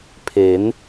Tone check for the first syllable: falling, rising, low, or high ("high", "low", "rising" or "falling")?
rising